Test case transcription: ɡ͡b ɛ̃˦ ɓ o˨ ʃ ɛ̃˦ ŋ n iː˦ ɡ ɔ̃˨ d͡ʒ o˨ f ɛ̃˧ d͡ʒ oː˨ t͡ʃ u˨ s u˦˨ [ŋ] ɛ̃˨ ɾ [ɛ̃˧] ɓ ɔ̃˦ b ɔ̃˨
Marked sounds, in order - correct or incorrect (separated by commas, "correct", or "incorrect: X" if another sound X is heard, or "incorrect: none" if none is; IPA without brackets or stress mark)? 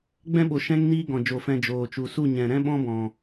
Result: incorrect: ɲ, incorrect: ɛ̃˦